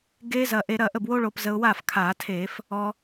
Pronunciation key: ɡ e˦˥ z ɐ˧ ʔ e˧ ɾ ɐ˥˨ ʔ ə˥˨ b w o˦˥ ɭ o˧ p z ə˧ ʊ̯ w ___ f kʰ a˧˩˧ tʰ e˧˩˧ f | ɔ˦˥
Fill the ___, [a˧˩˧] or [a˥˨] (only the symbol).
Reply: a˥˨